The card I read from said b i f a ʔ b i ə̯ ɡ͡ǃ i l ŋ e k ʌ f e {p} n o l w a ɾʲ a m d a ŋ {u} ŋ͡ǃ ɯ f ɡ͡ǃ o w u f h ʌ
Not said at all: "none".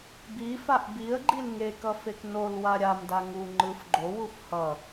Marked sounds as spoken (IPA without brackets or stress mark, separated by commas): k, u